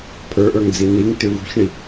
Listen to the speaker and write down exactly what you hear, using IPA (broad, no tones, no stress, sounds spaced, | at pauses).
pʰ ə˞ ʔ ə˞ ŋ d͡z i n i ŋ t̪ ʏ v ṳ ç ɳ i